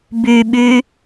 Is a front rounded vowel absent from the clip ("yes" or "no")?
no